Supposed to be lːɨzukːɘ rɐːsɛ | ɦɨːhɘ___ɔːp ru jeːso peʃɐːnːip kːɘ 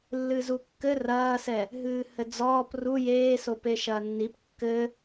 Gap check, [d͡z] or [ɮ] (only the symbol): d͡z